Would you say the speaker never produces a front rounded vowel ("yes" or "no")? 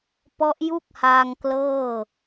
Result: yes